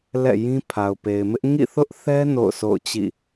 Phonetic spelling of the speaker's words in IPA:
l ɛ̰˦˨ j ĩ˦ pʰ a˨ ʊ̯ p e˨ ɪ̯ m ɪ˦ ʔ ŋ ḭ˦˨ θ ʊ˦ ʔ θ ɛ˦ n o̰˦˨ ʊ̯ sʰ o̰˦˨ ʊ̯ t͡ɕ ḭ˦˨

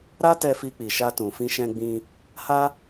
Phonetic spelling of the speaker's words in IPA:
ɾ a˦ t ɛ˧ f i˧ k͡p i˨ ʃ a˧ t ũ˨ f ĩ˧ ʃ ɛ̃˧ ɡ͡b ĩ˧ | h a˦

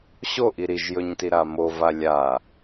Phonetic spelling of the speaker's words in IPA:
ɕ o ʔ i ɾ i ʒ j ɵ ɲ t i ɾ a m o v a lʲ a

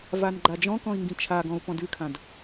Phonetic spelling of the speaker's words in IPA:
v a n ɡ͡ǃ a d͡ʒ ɔ̃ k ɔ̃ i̯ ŋ ɡ ĩ t͡ʃʰ a ɡ ɔ̃ u̯ p ɔ̃ d ʉ kʰ ã d

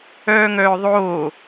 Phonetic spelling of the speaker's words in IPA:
œː ŋ œː ðˤ oː

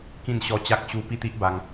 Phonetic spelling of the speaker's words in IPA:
k ĩ˥˧ n ɕ ɔ˦ t͡ɕ a˦ k̚ ɕ u˥˧ p i˥˧ t̪ i˦ ʔ b a˧ ŋ

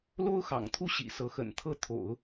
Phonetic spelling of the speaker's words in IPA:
l o˥ ʊ̯ x ɑ̰˨˩ ŋ t̪ʰ u˥ ɕ ḭ˨˩ s ɤ˧˥ x ə̰˨˩ n t̪ʰ ɤ˥˩ t̪ʰ o̰˨˩˦ ʊ̯

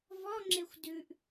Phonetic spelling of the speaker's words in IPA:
v ɔ ŋ͡ǁ e xʷ d ʉ ʔ

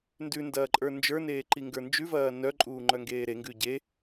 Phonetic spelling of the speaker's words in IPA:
n d ʉ n d ɐː ǃʼ ə˞ n d͡ʒ ə˞ n eː ǃ i ŋ ɡ ə˞ n d͡ʒ ʉ v ɐː n œ ǃʼ uː ŋ͡ǃ œ ŋ ɡ eː ɾ e ŋ ɡ ʉ ɟ e

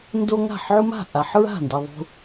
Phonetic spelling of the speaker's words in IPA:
n d o˦ ŋ a̤˥˩ ħ ʕ u˦ m a̤˥˩ ʔ a˨ ħ ɹ a̤˥˩ n d e˨ ðˤ ṳ˨

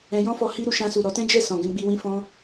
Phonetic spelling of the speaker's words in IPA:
ɛ̃˧ j ɔ̃˦ f ɔ˧ h i˦ ɾ u˧ ʃ ã˧ s u˨ ɾ ɔ˨˦ t ɛ̃˦ d͡ʒ ɛ˦˨ s ɔ̃˨ ɡ ɛ̃˧ ɡ͡b i˧ w ĩ˧ f ɔ̃˦

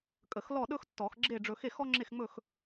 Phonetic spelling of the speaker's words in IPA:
kʼ ə˨˩˦ x l ɔ˥˨ ɗ ɵ˥ x tː ɔ˨˩˦ x ɡ͡ǁ e˥˨ ɖ͡ʐ ɵ˧ x e˥˨ x ɔ˥ ŋ͡ǁ e˥˨ x ŋ͡m ɵ˥˨ x

